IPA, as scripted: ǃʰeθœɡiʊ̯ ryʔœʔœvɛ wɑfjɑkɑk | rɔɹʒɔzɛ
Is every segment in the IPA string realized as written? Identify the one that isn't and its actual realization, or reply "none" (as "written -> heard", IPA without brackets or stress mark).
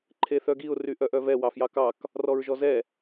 none